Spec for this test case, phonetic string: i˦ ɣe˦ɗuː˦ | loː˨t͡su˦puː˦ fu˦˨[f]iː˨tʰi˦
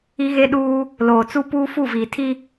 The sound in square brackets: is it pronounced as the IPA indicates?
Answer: no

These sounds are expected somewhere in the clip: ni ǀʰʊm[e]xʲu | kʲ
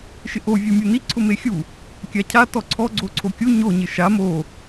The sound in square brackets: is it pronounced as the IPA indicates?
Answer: yes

